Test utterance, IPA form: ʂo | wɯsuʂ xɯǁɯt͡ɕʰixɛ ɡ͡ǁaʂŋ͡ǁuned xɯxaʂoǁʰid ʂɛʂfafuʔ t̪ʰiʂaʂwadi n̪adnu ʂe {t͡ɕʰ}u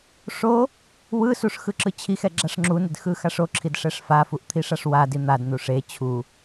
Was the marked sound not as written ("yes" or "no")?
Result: no